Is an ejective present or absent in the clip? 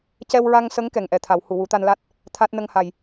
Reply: absent